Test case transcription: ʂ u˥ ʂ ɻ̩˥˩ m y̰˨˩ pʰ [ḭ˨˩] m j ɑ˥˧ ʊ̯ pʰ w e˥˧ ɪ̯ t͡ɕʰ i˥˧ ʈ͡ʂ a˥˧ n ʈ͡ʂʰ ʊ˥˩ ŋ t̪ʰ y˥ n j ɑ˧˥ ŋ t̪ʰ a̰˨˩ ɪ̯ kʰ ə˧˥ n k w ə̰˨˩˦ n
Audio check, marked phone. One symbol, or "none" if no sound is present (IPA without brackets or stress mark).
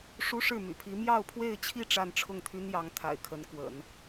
i˧˥